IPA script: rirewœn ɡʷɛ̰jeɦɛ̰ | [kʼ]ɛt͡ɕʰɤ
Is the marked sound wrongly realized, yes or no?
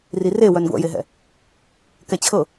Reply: yes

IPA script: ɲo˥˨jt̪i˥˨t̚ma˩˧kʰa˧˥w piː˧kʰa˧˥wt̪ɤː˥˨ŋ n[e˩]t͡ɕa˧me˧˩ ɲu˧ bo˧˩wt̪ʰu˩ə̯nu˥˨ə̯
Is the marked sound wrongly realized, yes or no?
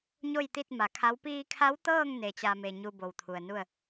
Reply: yes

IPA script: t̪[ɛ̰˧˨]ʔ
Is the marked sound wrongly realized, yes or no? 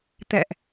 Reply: no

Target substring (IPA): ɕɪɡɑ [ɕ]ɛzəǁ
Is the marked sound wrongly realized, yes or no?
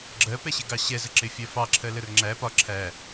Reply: no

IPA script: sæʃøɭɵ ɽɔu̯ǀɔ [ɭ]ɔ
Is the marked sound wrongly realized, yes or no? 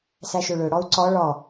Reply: no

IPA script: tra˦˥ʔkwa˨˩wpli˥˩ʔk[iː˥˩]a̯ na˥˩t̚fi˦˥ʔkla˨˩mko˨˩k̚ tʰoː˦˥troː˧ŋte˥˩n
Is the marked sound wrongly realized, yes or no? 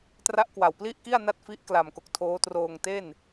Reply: yes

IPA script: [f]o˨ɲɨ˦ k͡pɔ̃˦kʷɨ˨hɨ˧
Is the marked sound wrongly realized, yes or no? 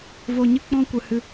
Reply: yes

